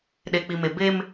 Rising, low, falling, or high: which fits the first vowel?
low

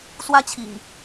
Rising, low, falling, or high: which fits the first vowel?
high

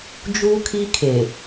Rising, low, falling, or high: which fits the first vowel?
high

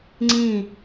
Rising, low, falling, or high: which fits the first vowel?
falling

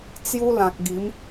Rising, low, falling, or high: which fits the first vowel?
high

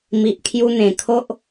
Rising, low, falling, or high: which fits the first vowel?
low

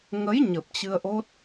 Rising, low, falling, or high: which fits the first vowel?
rising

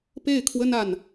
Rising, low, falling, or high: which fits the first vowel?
falling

